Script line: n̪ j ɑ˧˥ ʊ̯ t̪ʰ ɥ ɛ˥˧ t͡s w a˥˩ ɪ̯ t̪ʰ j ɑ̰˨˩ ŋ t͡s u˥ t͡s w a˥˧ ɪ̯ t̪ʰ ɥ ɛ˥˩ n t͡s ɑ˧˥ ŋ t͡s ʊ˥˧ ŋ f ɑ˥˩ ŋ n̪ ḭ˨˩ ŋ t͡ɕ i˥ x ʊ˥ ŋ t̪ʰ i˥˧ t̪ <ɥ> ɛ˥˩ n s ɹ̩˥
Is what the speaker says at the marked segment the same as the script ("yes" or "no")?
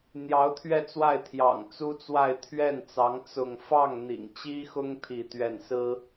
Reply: yes